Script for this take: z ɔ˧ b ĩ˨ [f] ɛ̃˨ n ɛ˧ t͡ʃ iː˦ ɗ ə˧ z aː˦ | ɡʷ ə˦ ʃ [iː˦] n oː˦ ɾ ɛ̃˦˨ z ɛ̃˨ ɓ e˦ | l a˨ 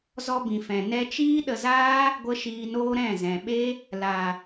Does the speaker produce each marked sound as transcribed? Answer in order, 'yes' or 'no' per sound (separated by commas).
yes, no